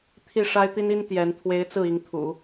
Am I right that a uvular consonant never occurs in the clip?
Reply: yes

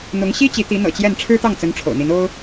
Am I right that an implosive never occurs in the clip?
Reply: yes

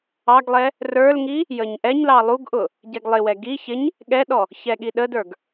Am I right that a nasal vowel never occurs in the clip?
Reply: yes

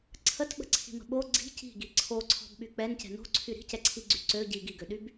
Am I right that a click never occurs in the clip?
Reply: no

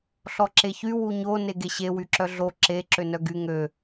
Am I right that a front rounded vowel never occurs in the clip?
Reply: no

